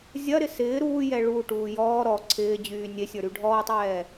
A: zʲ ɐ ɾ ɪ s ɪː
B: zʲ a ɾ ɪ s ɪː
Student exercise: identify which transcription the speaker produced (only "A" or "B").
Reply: A